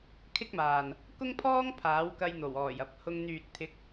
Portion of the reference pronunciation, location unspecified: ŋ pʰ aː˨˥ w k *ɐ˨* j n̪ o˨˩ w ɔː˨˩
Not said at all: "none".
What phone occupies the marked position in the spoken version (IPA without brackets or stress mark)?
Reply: ɐ˧